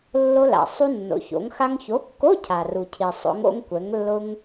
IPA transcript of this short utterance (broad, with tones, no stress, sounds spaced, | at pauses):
lː o˧ l a̰˩ sˤ u˧ nː o̰˩ ç o̰˩˧ ŋ x a˧ ŋ ç o˨˥ kː o˧˥˧ cʰ a˩ r u˩ cʰ i˩ sˤ o̰˩˧ ŋ o̰˧ ŋ kʷ ɛ˩˧ ŋ lː ʊ˧ ŋ